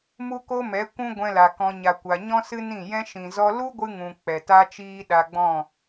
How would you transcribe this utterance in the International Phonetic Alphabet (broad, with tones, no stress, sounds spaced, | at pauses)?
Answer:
m u˦ k o˦ m ɛ˨˦ kʷ ũ˦ ɡʷ ɛ̃˧ l a˨ k ɔ̃˧ ɲ a˨ kʷ a˨ ɲ ɔ̃˦ s ɨ˦ n ĩ˦˨ j ɛ̃˦ ʃ ĩ˨ z ɔ˧ l u˦ ɡʷ ɨ˦ ŋ ũ˨ k͡p ɛ˨ t a˦ t͡ʃ iː˦ ɗ a˧ ɡ͡b ɔ̃˦˨